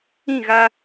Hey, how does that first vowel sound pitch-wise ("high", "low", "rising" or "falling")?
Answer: falling